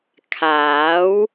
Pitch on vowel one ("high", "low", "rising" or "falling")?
rising